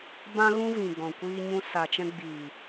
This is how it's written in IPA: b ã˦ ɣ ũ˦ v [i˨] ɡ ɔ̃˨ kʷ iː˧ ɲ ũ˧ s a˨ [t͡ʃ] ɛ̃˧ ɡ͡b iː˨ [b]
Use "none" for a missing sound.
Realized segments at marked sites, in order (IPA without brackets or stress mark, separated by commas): ĩ˨, t͡ʃ, none